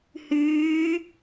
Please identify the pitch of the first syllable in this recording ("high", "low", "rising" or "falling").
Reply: rising